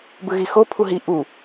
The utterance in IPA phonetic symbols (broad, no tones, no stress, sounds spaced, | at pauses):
b ɯ ɣ i x o pʰ u ɦ i ʔ u